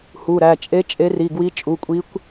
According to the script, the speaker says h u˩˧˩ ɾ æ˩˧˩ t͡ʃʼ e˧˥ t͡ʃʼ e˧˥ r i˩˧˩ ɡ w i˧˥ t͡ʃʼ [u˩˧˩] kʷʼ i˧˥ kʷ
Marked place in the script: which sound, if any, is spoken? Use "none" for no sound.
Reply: u˩˧˩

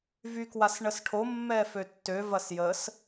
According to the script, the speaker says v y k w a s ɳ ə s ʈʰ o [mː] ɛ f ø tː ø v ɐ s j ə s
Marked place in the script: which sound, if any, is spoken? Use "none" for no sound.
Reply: mː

